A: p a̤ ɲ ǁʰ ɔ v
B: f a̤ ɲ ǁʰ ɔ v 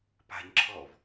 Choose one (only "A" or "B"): A